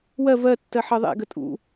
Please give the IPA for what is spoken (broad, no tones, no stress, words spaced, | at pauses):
wɜ vɜ tːɜħɜðˤɛ̰ ɡətʼṵ